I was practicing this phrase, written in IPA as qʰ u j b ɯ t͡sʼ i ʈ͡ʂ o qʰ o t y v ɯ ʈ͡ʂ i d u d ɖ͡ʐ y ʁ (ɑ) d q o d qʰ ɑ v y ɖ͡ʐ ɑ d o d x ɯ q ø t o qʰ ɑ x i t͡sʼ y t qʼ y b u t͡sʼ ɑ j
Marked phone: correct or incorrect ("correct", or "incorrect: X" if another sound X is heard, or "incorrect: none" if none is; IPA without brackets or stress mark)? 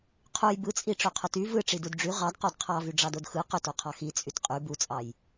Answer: correct